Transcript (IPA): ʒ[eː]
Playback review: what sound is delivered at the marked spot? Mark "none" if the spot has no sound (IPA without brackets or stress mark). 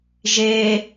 eː